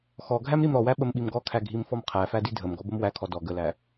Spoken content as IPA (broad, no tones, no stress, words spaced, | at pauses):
xɔɡʱæm ɾimɾɔwæ ɓəmɓimɡɔkʰæ ɡʱimfɔmqʰæfæ didʱəmɡɔ bəmwækʰɔ dɔ ɡəlæ